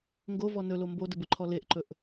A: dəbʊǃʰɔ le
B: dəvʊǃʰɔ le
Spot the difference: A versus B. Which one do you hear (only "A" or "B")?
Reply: A